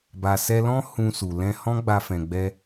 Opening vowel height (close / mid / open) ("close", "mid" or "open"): open